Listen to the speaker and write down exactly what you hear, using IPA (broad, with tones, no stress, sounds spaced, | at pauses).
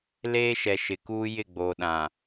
l eː˦ ʃ ɛ˨ ʃ ɪ˨ k uː˦ j ɪ˦˨ ɡ͡b oː˨ ɗ ã˨